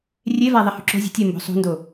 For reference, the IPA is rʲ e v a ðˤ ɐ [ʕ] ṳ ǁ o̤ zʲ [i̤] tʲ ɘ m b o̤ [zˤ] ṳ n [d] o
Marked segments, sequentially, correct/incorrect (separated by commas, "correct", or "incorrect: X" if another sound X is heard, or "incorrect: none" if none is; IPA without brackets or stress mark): incorrect: h, incorrect: e̤, incorrect: sˤ, correct